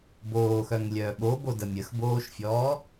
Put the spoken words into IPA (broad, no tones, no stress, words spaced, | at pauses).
boːxœŋlʲœː ɓobodə mʲəxboːʃfʲɔː